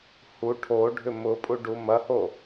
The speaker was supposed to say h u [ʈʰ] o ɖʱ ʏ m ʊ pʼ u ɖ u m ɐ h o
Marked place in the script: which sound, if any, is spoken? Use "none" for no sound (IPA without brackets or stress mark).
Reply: ʈʰ